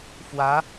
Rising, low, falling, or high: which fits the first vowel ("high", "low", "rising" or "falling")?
rising